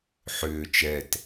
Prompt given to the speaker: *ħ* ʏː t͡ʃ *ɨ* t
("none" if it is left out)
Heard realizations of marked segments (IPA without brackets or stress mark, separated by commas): ħ, ɛ